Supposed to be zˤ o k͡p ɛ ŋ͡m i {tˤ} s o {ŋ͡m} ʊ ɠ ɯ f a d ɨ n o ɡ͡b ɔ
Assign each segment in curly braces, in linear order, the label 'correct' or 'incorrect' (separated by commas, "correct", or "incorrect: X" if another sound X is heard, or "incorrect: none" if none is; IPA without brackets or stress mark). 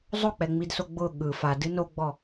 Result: incorrect: d, incorrect: ɡ͡b